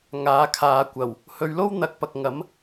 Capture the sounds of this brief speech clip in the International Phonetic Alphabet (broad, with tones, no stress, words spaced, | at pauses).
ŋaː˨˧kʰaː˨˧kʷɐ˨˩w | hɵ˨˧ɥlo˥wn̪ɐ˨k̚ pɐ˨k̚ŋɐ˨˥m